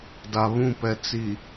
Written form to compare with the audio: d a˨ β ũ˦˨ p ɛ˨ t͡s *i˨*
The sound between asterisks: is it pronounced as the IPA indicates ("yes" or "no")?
yes